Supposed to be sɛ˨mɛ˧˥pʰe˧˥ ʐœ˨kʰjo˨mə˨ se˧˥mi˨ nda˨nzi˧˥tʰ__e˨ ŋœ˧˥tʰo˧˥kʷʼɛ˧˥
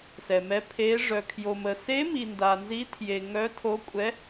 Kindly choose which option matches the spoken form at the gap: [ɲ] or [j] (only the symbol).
j